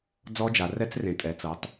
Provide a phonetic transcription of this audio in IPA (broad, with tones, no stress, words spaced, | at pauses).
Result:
d͡zɔ˦˥d͡ʒa˨˦rɛ˦˥t͡s rẽ˨˦ tʼɛ˨˦t͡sɤ˨˦tˤ